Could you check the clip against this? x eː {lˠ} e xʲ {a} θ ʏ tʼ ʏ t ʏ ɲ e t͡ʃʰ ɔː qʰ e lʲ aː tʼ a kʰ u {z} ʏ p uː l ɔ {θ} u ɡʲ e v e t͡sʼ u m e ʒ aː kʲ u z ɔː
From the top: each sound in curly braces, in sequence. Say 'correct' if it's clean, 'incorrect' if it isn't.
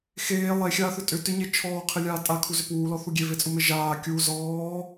correct, incorrect: aː, correct, correct

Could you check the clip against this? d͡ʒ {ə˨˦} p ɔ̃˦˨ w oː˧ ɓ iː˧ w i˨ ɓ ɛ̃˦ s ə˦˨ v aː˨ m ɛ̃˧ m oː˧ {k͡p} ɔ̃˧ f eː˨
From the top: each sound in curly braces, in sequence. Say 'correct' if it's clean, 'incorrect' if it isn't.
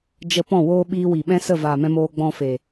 incorrect: ə˧, incorrect: ɡ͡b

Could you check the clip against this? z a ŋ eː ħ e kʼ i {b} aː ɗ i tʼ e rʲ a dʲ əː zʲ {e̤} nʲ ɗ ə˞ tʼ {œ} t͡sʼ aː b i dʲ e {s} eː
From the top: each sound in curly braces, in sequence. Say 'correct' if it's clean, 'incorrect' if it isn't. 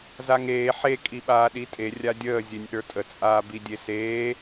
incorrect: ɓ, incorrect: e, incorrect: ə, correct

